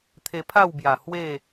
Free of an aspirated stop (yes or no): no